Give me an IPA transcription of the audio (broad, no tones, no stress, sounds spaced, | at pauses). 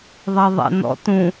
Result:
ðˤ ɐ ðˤ ḛ n ɔ̰ t ũ